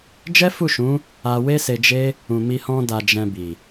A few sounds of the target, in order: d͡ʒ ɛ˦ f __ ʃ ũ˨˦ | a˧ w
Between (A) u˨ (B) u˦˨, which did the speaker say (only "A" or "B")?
B